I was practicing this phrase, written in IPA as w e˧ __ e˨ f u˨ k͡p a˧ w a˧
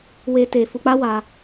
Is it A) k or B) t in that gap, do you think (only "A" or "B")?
B